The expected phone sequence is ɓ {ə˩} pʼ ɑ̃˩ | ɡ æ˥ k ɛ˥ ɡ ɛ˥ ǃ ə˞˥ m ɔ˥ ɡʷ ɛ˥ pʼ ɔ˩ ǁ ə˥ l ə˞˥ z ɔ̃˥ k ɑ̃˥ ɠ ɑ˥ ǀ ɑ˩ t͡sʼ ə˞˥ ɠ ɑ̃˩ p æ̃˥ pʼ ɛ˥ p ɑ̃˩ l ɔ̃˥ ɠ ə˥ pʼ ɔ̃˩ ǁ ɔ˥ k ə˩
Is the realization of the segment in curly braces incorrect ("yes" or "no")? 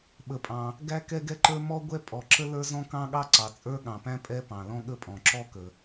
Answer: no